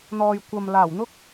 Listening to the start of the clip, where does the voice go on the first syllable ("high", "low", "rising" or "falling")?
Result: low